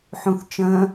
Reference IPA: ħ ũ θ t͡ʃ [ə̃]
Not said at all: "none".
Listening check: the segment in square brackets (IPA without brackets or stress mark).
ə̃